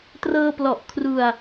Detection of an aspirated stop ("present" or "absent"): present